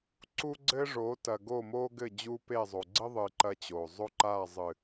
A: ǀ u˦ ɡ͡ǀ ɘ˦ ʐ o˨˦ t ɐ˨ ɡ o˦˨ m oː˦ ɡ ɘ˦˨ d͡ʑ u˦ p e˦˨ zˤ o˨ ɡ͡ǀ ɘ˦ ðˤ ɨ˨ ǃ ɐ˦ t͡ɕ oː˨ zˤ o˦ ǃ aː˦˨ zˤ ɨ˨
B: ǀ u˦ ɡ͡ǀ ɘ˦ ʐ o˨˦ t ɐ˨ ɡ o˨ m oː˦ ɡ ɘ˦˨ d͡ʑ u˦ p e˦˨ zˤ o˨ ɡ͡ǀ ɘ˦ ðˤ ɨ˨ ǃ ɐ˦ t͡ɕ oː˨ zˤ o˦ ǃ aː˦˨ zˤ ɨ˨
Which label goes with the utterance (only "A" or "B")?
A